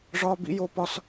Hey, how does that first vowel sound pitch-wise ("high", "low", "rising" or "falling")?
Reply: high